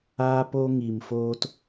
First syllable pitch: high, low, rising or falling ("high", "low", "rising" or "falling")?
high